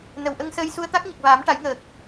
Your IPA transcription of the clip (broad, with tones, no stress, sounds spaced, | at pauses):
n ə˨˩˨ w ʔ ə˧ ŋ s əː˧ j s u˧ ə̯ t̪ a˦˥ k̚ ɲ ə˨˩ k̚ v aː˨˩˦ m ʈ a˨˩˦ j ŋ əː˨˩ k̚